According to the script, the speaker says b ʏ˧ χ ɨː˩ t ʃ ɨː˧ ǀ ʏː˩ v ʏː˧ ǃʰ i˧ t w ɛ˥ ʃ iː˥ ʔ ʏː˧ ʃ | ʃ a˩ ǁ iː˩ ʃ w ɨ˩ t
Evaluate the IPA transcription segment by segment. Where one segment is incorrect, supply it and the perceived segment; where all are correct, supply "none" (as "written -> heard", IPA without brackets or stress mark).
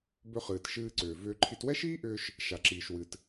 none